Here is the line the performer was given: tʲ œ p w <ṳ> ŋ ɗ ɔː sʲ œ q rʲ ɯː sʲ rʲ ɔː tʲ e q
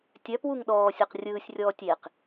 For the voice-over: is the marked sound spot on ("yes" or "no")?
no